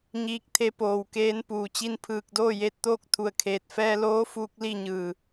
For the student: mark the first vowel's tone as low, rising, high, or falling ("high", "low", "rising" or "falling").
rising